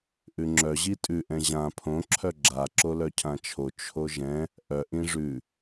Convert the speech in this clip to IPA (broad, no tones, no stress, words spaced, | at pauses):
ʔʉŋ͡ǁœ ʑitʼʉ ʔɛ̃ʑã pʰõ ǁʰœɡ͡ǁa ǁolœcʰãt͡ʃʰo t͡ʃʰoʒɛ̃ | ʔœ ʔĩʐʉ